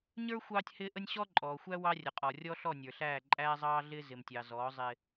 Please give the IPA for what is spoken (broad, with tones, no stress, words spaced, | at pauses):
ɲə˞˦ xʷɑː˦tʲhɪː˦ʔə˦nʲ ɕɔ˦ǃʼɔː˨xʷæ˦ wɑ˦rʲə˨qʼɔ˨ rʲɔ˦ɬɔ˦˨nʲə˞˨ɬæː˦˨ ǃʼæː˦zˤɑː˦ɮɪː˦ zɪ˨mtʲɑ˨zɔː˨˦ zˤɪː˦